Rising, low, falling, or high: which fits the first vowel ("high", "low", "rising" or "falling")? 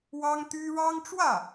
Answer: high